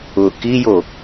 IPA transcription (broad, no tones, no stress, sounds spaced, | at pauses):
ʊ k i j o